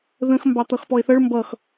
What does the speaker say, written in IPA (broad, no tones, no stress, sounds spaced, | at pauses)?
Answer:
ð ə̃ x m b ɑ t̪ ʌ x p ɔ e̯ θ ʌ ɭ m b ʌ x